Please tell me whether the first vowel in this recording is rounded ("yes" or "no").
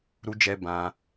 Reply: yes